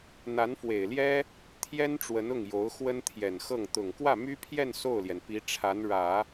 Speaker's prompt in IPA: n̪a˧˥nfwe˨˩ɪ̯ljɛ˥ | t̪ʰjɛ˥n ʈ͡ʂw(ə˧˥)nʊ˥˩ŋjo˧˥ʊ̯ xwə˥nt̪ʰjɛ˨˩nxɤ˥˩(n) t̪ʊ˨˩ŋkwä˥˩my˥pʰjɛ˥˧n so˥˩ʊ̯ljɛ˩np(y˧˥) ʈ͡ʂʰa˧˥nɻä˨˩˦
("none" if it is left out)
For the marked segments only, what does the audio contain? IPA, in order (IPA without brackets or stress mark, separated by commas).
ə˧˥, ŋ, i˧˥